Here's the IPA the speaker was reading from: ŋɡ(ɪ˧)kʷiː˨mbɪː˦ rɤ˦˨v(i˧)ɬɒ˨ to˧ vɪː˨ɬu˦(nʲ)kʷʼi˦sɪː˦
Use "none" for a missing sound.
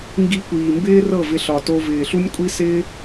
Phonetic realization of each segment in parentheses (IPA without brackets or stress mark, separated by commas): i˧, ɪ˧, nʲ